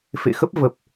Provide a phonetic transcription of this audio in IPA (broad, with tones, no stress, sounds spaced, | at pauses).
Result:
f ḛ˧˨ x ə˦˥ p̚ v ə˨˩ p̚